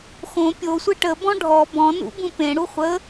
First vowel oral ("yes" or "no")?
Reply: no